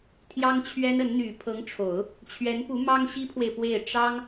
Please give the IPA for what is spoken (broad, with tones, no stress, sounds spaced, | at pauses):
t̪ʰ j ɑ˥ ŋ t͡ɕʰ ɥ ɛ˥ n ə˧˥ n n̪ y˨˩ pʰ ɤ˧˥ ŋ ʈ͡ʂʰ o˨˩˦ ʊ̯ | t͡ɕʰ ɥ ɛ˧˥ n p u˧˥ m ɑ˥ ŋ ɕ i˥ pʰ w e˨ ɪ̯ p w e˥˩ ɪ̯ ʈ͡ʂ ɑ˥ ŋ